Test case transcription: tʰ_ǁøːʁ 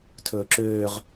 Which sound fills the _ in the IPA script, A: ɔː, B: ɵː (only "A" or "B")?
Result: B